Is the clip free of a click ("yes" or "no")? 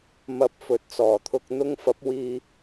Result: yes